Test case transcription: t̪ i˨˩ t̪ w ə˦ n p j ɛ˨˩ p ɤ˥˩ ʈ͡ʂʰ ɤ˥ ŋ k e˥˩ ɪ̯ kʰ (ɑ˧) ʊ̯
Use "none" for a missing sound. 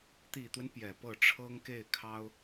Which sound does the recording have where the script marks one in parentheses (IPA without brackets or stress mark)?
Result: ɑ˥